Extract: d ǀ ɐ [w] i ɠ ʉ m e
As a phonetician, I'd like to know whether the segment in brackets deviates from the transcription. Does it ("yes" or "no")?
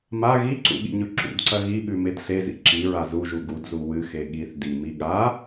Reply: yes